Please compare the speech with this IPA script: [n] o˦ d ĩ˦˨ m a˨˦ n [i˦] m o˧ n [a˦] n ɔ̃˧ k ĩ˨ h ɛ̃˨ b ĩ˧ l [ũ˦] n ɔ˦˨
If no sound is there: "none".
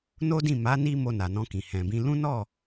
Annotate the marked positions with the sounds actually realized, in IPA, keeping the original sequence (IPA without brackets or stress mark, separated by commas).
n, i˦, a˨, ũ˦